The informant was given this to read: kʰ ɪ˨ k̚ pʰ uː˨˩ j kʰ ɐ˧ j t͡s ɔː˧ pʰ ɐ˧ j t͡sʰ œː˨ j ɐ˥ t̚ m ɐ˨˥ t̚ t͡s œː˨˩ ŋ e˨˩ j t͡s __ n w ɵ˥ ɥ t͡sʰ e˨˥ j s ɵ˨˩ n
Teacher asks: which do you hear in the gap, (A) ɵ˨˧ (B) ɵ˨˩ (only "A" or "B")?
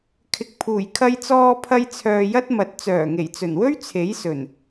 B